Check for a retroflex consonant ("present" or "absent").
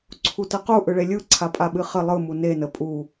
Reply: present